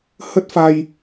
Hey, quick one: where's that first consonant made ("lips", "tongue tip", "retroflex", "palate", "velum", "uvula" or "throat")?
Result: throat